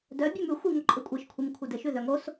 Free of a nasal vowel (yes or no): yes